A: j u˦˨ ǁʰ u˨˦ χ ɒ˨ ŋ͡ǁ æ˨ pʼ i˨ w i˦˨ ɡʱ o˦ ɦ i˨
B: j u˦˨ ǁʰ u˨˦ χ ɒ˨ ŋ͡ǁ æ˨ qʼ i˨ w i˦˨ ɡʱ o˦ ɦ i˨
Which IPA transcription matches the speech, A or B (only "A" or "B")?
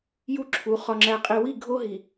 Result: B